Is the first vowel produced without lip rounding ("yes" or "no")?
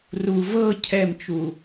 no